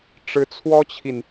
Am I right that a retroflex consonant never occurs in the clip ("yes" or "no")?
no